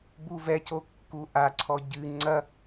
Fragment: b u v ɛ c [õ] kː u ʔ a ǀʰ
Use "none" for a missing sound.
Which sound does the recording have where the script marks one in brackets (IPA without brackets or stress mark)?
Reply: o